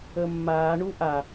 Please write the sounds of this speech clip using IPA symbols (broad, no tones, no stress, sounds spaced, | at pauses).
ə mː aː ɳ u ʔ a